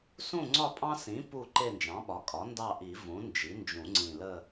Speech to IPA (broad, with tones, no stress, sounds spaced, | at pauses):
s ũ˦˨ ŋ͡ǀ ɒ˦˨ pʼ ɑ̃˦ s ĩ˩˥ p u˦˨ ǃ e˦˨ n d͡ʒ ɑ̃˩˥ ɓ ɒ˩˥ kʼ ɒ˩˥ n d ɑ˦˨ ʔ i˨˩˦ v ũ˩˥ n d͡ʒ i˩˥ n d͡ʒ ũ˨˩˦ ŋ͡ǀ ĩ˨˩ l ə˦˨